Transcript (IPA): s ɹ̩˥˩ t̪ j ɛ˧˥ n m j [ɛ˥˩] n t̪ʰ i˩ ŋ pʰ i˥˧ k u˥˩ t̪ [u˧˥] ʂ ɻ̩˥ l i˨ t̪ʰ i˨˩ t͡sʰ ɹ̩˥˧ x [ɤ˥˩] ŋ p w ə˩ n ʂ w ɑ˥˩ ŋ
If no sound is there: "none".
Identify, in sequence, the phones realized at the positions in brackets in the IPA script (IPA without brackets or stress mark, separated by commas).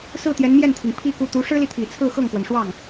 ɛ˥˩, u˧˥, ɤ˥˩